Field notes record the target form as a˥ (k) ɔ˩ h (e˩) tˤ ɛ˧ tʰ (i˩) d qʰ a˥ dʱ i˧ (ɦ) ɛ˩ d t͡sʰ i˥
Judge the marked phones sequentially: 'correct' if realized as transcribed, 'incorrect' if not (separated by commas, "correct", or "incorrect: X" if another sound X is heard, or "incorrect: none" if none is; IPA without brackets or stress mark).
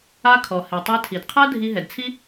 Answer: incorrect: kʰ, correct, correct, correct